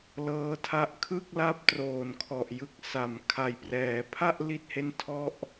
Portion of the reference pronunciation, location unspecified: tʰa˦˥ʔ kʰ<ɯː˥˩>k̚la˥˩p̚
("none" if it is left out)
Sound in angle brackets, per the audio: ɯ˥˩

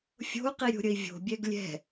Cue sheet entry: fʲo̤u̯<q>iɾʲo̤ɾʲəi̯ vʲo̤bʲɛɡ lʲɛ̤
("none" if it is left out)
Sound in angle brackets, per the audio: q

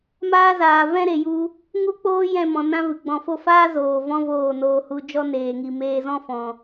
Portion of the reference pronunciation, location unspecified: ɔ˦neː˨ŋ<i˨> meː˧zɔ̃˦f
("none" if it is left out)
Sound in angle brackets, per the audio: i˨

